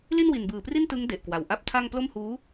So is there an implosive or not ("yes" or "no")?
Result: no